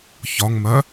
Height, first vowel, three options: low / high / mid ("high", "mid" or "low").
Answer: low